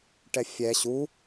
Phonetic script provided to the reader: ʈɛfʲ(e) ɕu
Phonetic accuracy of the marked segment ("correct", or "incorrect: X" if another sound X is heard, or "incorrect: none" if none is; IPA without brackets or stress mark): incorrect: ɛ